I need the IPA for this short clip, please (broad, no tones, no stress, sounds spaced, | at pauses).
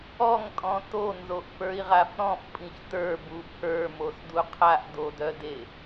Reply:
ɔ ŋ tʼ ɔ̃ t o n z o ʔ f ə˞ i̯ ʁ a f ɾ ɔ̃ f pʼ ĩ ç t ə˞ b u pʰ ə˞ m o s d u qʰ a ʔ d o d œ d e